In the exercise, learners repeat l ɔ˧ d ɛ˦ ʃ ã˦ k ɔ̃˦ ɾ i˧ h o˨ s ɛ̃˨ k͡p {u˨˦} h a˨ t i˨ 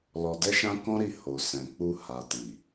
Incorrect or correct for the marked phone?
incorrect: u˧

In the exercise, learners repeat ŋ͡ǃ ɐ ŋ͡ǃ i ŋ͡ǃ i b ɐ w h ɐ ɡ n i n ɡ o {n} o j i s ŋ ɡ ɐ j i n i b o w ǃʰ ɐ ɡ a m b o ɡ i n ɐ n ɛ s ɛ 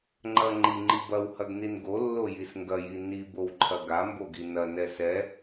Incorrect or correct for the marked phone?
incorrect: lː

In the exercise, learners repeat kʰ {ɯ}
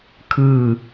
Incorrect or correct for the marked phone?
incorrect: ɯː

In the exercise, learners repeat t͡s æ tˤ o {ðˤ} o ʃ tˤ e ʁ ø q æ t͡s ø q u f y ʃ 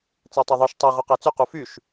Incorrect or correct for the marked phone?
correct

